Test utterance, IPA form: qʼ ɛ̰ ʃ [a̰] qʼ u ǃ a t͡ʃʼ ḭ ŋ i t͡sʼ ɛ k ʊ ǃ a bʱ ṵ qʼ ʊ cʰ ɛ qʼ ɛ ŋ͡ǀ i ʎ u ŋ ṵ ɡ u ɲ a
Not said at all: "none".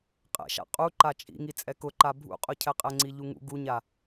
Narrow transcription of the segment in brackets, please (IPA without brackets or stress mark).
a̰